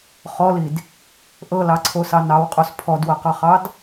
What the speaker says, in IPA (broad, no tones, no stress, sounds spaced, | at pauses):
χ ɔ l i d | ʔ ɤ l ɑ ǀʰ o s ɑ n ɑ w qʼ o s pʰ ɔ d w ɤ q ɑ χ ɑ d